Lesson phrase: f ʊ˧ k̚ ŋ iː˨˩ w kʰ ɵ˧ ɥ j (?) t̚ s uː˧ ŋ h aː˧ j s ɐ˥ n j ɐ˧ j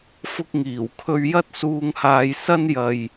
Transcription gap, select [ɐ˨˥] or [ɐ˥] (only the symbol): ɐ˥